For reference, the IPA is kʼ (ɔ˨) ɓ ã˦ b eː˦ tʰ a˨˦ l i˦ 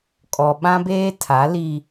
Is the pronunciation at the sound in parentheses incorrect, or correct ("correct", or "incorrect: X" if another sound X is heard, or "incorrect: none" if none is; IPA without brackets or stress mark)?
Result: correct